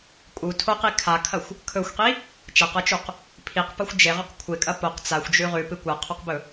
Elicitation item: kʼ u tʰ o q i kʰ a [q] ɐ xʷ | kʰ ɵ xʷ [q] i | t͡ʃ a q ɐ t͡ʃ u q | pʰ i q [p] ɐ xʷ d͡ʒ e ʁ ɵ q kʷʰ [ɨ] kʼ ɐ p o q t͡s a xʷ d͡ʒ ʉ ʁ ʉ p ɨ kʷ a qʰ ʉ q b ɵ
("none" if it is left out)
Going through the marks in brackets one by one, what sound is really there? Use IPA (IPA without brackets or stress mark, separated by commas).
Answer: kʰ, q, p, e